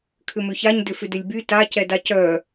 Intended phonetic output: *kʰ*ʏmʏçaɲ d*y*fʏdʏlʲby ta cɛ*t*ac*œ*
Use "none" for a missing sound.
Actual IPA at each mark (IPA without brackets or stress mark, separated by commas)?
kʰ, ʏ, d, œ